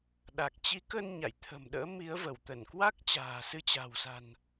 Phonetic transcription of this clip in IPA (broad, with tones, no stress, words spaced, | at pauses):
ɗa˨˩k̚t͡ɕi˨˦kə˧n ɲa̰˧˨jt̪ʰə̤˨˩mɗə̰ː˧˥ mi˨˦ə̯və˧˩wt̪ə˧˩n kwa˦˥k̚t͡ɕa̤ː˨˩sɨ˧t͡ɕa̤˨˩w sa̤˨˩n